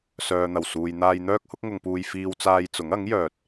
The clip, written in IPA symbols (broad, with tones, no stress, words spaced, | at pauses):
sœː˨n̪ɐ˨˩wsuː˨jn̪aː˧j n̪œː˥k̚hʊ˥k̚ŋʊ˧ŋpuː˧j fiː˧w t͡saː˧jt͡sʊ˨˥ŋ ɐ˨˥ŋjœː˨t̚